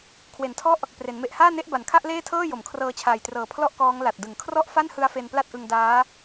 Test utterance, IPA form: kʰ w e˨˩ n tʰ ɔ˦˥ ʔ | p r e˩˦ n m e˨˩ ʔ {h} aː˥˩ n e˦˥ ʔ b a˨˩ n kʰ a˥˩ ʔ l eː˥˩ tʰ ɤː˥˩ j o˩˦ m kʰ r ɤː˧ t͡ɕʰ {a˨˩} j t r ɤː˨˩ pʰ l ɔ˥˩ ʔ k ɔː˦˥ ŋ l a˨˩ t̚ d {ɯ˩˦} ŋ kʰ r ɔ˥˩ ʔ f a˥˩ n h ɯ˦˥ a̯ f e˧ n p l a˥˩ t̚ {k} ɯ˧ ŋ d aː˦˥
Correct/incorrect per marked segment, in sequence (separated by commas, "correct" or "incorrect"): correct, incorrect, incorrect, incorrect